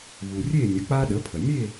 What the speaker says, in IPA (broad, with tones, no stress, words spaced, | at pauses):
βu˩rʲe˥˨nʲə˩˥ k͡pa˦ɗə˩˥pʰə˩ mʲe˥˨